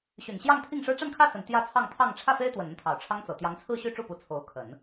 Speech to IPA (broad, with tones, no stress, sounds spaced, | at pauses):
ɕ y˨˩ n ɕ j ɑ˥˧ ŋ pʰ i˥˩ ŋ ʂ ɻ̩˥ ʈ͡ʂ a˥˧ n kʰ ä˥˩ s ə˨˩ n t̪ j ä˥˧ t͡sʰ ɑ˥˧ ŋ t̪ʰ ɑ˥˧ ŋ ʈ͡ʂʰ ä˥˩ f e˥ ɪ̯ t̪ w ə˨˩ n ə˥˩ n t̪ʰ ɑ˨˩ ʊ̯ ʈ͡ʂʰ ɑ˥ ŋ t͡s ɤ˨˩ t̪ j ɑ˧˥ ŋ t͡sʰ ɹ̩˥˧ ɕ y˥˧ ʈ͡ʂ u˥˩ p u˧˥ t͡sʰ o˧˥ ʊ̯ kʰ ə˨˩˦ n